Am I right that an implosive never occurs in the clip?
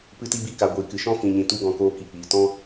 yes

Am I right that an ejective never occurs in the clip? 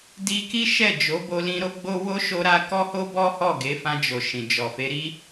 yes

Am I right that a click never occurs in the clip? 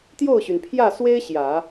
yes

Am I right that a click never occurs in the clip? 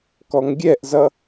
yes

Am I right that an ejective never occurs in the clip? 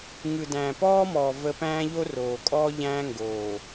no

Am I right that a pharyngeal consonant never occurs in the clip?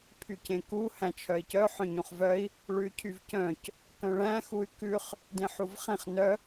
no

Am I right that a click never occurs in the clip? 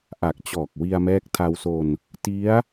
yes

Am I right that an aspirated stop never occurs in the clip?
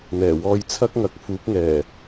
no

